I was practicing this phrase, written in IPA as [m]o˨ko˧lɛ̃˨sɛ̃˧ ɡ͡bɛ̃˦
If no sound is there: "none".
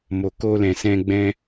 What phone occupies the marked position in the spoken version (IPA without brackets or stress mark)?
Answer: m